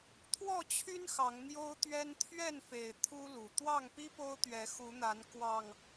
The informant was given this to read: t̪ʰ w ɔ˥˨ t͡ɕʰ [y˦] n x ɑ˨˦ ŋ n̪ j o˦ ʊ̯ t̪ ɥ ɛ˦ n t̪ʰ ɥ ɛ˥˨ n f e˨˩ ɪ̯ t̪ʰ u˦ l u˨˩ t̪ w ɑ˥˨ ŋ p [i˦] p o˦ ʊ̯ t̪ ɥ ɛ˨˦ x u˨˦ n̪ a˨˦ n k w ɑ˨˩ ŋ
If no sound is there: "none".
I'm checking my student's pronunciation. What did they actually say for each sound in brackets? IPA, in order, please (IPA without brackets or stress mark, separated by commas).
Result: y˦, i˦